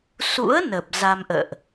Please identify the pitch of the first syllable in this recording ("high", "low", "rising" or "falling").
rising